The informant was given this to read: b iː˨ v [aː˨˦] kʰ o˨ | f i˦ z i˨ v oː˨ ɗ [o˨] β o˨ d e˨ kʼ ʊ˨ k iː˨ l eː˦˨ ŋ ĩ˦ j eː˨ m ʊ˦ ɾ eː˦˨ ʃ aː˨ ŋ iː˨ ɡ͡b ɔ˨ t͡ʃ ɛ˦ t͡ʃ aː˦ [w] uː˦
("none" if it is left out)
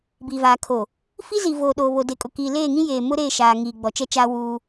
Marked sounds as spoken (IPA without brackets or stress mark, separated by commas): aː˨, oː˨, w